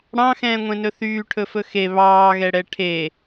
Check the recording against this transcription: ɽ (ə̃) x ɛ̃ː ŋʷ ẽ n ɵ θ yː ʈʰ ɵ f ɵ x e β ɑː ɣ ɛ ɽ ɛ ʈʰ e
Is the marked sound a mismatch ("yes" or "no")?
yes